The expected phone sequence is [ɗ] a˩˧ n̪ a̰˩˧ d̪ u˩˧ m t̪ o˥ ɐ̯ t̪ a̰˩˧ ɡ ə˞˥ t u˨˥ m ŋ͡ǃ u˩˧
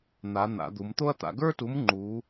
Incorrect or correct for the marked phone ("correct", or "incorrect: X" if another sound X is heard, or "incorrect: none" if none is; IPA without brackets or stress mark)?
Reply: incorrect: n̪